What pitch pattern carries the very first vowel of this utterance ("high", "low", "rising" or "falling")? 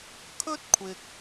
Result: high